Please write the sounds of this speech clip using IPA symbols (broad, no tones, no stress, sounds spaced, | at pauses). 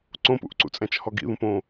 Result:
ǀ õ p ṵ ʔ ǀ ṵ t͡sʼ æ̃ t͡ʃ h ɔ ɡ ḭ ð ũ p õ